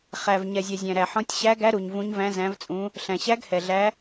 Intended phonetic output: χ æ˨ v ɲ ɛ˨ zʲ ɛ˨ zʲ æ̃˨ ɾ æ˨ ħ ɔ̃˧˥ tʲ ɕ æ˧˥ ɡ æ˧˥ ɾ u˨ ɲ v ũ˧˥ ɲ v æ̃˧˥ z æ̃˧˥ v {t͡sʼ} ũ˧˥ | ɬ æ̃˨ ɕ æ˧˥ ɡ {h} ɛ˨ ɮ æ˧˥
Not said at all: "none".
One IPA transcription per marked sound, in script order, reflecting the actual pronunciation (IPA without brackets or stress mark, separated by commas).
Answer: t͡sʼ, h